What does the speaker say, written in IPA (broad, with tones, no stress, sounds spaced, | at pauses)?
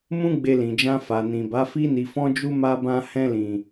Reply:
m ũ˦ ɡ͡b e˧ l ĩ˨ d͡ʒ ã˧ f a˨ n ĩ˨ b a˨˦ f i˧ n i˨ f ɔ̃˧ d͡ʒ u˧ m a˧ b ã˧ h ɛ̃˧ l ĩ˨